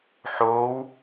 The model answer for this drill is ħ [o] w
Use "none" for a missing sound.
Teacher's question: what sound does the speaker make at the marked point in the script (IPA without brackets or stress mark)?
o